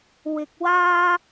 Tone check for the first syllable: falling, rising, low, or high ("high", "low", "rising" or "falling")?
low